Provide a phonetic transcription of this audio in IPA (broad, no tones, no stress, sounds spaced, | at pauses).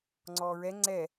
ŋ͡ǀ ɔː ɹ ɛ ŋ͡ǀ ɛ